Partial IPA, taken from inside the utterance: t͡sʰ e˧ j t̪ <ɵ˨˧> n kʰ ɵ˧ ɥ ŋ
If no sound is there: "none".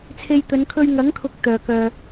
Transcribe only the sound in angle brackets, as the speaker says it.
ɵ˨˧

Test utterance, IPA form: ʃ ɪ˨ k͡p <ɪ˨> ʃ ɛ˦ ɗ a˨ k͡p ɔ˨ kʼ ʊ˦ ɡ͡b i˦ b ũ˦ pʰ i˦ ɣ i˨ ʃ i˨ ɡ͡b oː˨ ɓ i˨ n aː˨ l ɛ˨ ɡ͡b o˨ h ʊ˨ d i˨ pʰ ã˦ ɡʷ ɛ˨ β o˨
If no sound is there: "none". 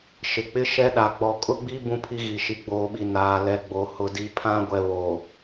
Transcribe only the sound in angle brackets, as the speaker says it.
ɪ˦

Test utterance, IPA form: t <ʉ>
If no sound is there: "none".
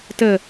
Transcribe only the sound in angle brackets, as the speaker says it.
ə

